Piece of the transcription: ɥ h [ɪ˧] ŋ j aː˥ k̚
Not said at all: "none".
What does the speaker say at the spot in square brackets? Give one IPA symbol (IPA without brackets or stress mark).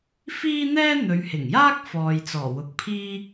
ɪ˨˩